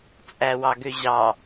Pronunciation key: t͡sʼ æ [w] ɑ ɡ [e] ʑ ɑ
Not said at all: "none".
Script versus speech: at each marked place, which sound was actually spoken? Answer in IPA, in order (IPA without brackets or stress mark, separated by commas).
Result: w, ø